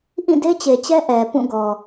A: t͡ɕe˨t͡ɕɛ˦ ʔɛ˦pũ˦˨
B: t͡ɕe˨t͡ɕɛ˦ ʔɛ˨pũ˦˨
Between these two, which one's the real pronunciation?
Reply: B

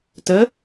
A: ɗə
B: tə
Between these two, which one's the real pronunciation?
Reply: B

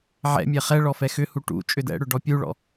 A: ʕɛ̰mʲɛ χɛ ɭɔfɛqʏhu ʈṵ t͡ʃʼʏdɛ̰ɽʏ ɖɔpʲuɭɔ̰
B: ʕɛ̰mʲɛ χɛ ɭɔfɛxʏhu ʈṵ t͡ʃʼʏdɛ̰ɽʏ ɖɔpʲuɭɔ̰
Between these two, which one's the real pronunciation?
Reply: B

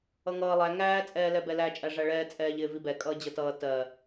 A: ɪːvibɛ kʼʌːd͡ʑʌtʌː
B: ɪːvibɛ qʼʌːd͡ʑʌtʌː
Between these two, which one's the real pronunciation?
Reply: A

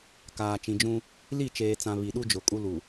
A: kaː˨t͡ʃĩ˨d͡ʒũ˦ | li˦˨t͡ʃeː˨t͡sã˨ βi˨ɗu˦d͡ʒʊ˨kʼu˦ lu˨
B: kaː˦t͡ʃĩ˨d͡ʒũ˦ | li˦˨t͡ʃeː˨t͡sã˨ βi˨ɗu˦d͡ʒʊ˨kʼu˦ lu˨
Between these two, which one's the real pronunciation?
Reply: A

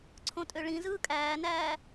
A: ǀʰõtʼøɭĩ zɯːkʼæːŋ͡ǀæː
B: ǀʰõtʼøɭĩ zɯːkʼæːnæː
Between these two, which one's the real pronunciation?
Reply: B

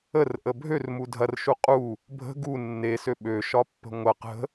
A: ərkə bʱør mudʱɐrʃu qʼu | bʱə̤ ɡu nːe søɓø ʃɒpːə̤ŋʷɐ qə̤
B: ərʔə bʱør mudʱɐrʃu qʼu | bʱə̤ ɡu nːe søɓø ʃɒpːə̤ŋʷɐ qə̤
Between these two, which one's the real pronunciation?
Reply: B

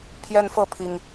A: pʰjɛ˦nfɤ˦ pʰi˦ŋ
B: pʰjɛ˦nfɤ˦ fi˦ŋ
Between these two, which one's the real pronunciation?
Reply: A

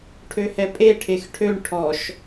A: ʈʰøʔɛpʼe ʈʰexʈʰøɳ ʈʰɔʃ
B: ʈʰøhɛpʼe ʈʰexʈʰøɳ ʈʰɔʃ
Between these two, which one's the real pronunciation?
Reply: B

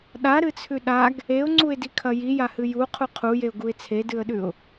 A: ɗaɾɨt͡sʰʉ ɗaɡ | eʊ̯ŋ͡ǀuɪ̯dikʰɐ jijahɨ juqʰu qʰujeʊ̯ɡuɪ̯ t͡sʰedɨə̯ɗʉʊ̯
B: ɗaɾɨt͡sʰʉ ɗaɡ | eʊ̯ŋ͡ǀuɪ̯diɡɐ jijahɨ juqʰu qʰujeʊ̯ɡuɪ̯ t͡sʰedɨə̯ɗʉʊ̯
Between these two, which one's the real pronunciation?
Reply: A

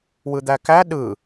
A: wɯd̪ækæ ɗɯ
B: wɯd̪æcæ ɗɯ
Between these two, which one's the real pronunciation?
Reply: A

